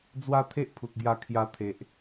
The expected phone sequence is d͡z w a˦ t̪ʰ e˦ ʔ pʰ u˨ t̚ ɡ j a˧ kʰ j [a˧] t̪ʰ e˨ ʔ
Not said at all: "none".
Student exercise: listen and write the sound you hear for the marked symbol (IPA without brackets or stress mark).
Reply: a˧